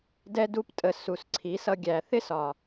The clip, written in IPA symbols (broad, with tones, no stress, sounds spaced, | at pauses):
d ɛ˦ d u˦ p tʼ ə˧ s u˨ s ǀʰ i˨˦ s ʌ˧ ɡʲ æ˨ θ ɪ˦ s ɒ˨